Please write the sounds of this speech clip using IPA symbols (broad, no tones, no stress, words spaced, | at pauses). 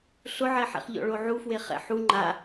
ɬʊʕɛħɛ̰χʎɔ̰ ɭoʕufwe χɛ̰ħu ŋ͡ǃa